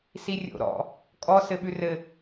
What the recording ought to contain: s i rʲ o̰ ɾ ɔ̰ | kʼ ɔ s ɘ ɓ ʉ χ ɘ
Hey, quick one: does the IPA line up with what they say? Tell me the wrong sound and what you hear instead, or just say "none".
χ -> r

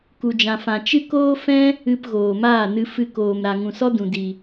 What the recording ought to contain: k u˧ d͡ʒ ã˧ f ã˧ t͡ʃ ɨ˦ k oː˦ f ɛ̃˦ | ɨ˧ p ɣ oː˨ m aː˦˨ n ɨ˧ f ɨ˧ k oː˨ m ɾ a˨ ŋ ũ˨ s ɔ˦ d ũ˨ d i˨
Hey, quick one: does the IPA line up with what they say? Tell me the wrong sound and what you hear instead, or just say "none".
none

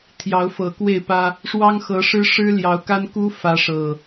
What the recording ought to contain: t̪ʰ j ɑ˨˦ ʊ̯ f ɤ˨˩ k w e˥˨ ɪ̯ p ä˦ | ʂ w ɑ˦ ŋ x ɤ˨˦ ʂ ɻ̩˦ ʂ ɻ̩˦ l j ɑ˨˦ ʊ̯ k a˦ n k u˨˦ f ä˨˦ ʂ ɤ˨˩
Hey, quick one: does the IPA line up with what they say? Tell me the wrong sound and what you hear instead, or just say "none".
u˨˦ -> u˦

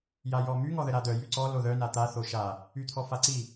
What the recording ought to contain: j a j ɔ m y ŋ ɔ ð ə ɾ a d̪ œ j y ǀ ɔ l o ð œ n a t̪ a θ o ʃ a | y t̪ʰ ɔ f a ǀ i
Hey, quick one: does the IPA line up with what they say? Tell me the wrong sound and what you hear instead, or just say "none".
none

